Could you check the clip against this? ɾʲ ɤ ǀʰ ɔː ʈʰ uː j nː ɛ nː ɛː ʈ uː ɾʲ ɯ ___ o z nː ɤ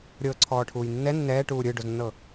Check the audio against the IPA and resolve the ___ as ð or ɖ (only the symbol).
ɖ